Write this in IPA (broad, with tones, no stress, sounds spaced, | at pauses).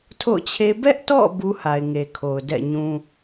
tʰ o̰˦˨ ʊ̯ t͡ɕʰ e˦ b ɛ˦ ʔ t ɔ̰˦˨ b u˦ h a˨ ɪ̯ ŋ e˨ kʰ o˨ ʊ̯ d ɛ̰˦˨ ɲ ũ˦